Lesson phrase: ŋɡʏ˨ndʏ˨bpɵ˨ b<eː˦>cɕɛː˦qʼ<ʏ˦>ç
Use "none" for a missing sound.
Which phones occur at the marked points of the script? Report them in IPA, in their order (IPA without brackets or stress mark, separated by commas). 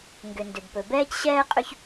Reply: ɛː˦, ʏ˦